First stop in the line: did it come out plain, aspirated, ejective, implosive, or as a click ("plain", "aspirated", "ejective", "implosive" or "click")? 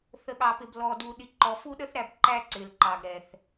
implosive